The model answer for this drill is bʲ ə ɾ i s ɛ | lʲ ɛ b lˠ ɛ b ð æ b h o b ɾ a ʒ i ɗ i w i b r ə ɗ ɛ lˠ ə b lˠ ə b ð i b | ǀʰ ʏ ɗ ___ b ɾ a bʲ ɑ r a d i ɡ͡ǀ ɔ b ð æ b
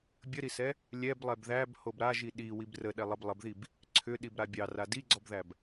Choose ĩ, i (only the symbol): i